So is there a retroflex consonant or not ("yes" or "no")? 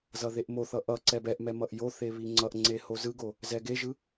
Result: no